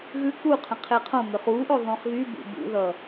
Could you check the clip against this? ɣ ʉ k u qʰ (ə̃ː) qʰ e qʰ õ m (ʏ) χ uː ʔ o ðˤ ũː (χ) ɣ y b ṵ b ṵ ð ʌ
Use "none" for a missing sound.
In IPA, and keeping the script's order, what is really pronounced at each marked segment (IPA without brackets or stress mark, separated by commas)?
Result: ə̃, ʏ, χ